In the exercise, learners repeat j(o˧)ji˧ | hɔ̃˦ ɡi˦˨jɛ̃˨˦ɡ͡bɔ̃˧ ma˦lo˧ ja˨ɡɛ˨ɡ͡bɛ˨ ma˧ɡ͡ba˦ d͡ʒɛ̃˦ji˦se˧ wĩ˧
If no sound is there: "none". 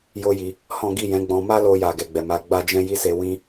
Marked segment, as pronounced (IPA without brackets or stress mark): o˦